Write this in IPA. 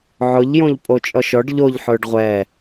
ʕ ʊ ʎ j õ ʎ pʼ o t͡ʃʼ ɔ ʃ ɔ ɖ ʎ o ʎ ħ ʊː ɖ ʁʷ ɛ

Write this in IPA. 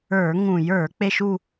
ə˞˧˩˧ ŋ ũ˧˩˧ j ə˞˧˩˧ k͡p e˥˧ ʃ u˥˧

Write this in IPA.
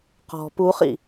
q ɔ̤ p u χ ḭ

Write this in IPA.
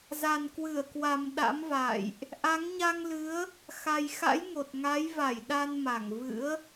z a˨˩ n k w ɨ˧˩ ə̯ k w a˨˩ m ɗ a̰˧˥ m v a̰ː˧˨ j ʔ | ʔ a˨˦ ŋ ɲ a˧ ŋ l ɨ˨˦ ə̯ | x a˨˩ j x a̰˧˥ j ŋ o˨˩ t̚ ŋ a˨˦ j v a˧˩ j ɗ a˧ n m a˧˩ ŋ v ɨ̰˧˥ ə̯

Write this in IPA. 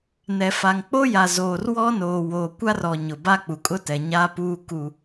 n ɛ˨ f a˨ ŋ k͡p o˦ j a˨ z oː˨ r w ɔ˦ n oː˨ w oː˨ kʷ a˦ r ɔ˨ ɲ ʊ˨ b a˦ k͡p u˨ kʼ ʊ˦ t ɛ˨ ɲ aː˦ p uː˦ k u˨

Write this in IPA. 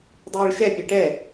dˤ iː ɭ ʃ ɛ pʲ e ʈ ɛ

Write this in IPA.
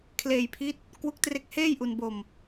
kʰ l eː˧ j pʰ i˦˥ t̚ | k w u˦˥ k̚ t r e˦˥ k̚ h eː˥˩ j ʔ u˧ n b o˧ m

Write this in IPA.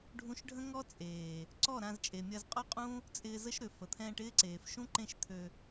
ɖʱ ũ˧ ʃ ɖʱ ə̃˦ ŋ ɔ˦ t͡sʼ eː˨ | ǀ ɔ˦˨ ɾ ã˧ z t͡ʃʼ e˨ mʲ ɐ˧ z qʼ ɔ˦ qʼ ũ˦ | t͡sʼ ɪː˧ z ə˦ ʃ ɾ ʏ˨ f ə˨ t̪ʰ ɛ̃ː˧ ʈ ɪː˦ ǀ eː˨ f ʃ ũ˦ ǃ ẽ˦˨ ʃ t̪ʰ ø˧

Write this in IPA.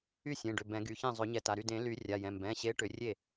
y˥˩ sʲ ẽ˩˧˩ ɖ ʏ˩˧˩ b ɛ̃˨˩˦ ɡ y˩˧˩ ç ẽ˥˩ zˤ ɵ˨˩˦ ɲ ɛ˨˩˦ t a˩˧˩ ɾ y˥˩ d ẽ˨˩˦ l y˨˩˦ rʲ a˩˧˩ j ɛ̃˩˧˩ m b ɛ̃˩˧˩ ɕ e˨˦ ʈ ʏ˨˦ rʲ e˥˩

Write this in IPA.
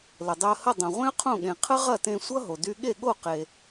l ə˩ dˤ ɪ˧ ə̯ h ə˥˩ dˤ õ˩ ʁʷ ẽ˥ ə̯ qʰ õ˥˩ ɠ ẽ˩ qʰ ə˥ ʁ ɐ˥˩ t ẽ˧ sʷ ʌ˥ ɦ o˩ d y˧ ɠ e˥˩ ɠ o˥˩ q e˩

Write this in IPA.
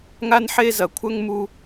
ŋ a˥ n ħ e˥ z ɐ˩ kʷʰ œ˥ ŋ m u˥

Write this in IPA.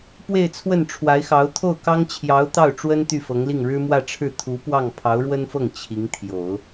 p w e˥˧ ɪ̯ t͡sʰ w ə˥˩ n ʈ͡ʂʰ w a˧˥ ɪ̯ x ɑ˧˥ ʊ̯ t̪ʰ o˥˩ ʊ̯ k ɑ˥ ŋ t͡ɕʰ j ɑ˧˥ ʊ̯ t̪ ɑ˥˩ ʊ̯ ʈ͡ʂ w ə˥ n t̪ y˥˩ f ɤ˧˥ ŋ l i˥˩ ŋ ɻ ɻ̩˥ m w ä˥˧ ʈ͡ʂʰ ɻ̩˥˩ t̪ʰ u˧˥ p w ɑ˥˩ ŋ pʰ ɑ˧˥ ʊ̯ ɻ w ə˥ n f ɤ˥˩ ŋ t͡ɕʰ i˧˥ ŋ t̪ʰ j o˨˩˦ ʊ̯

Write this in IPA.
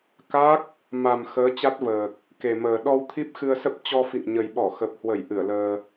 k a˦˥ k̚ | m a˨˩ m x əː˨˦ t͡ɕ a˦˥ t̚ v əː˨˩ k̚ | k e˨˩ m əː˨˩ ɗ ɔ˧ w t̪ʰ i˦˥ p̚ x ɨ˧ ə̯ s ə˦˥ p̚ t͡ɕ ɔ˧ f ḭ˧˨ ŋ ɲ ə˨˩ j ɓ ɔ˧˩ x ə˨˩ p̚ h w ə˧˩ j ʔ ɨ˧˩ ə̯ l əː˧

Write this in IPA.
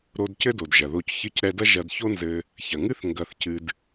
ɾ o˧ d c ɘ˥ d o˩ d ʒ ɐ˩ ð o˧ c ç ɨ˧ c ɾ ɛ˧ d ɐ˥ ʒ ɐ˧ d ç o˥ n z ɘ˧ | ç ɐ˩ ŋ ɨ˥ θ ŋ ɡ ɐ˧ θ c ɨ˧ d

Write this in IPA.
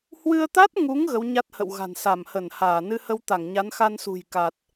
h w ɨ˧ ə̯ t̪ a˦˥ t̚ ŋ u˨˦ ŋ ɣ ə˨˦ w ɲ a˦˥ t̚ h ə̰˧˨ w ɣ a̤˨˩ n s a˧˩ m h ə˧˩ n h aː˧˩ n ɨ˧ h ə˧ w t̪ a˧˩ ŋ ɲ a˨˦ n x a˧ n s ṳ˨˩ j k a˨˩ t̚

